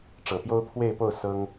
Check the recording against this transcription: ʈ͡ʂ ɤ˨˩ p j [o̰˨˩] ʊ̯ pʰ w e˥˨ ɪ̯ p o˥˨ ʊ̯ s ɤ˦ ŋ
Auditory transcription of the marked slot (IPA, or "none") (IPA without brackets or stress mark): o˦